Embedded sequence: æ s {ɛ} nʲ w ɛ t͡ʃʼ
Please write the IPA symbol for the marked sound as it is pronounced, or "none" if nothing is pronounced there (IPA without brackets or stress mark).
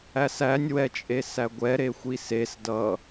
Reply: æ